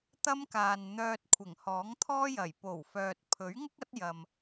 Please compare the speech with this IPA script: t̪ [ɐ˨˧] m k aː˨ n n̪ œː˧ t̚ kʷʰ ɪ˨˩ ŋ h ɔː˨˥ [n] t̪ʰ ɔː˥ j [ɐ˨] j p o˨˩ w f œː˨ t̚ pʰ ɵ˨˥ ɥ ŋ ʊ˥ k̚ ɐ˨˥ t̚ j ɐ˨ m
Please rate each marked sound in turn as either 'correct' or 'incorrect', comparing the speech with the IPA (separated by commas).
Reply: incorrect, incorrect, incorrect